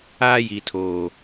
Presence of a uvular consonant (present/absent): absent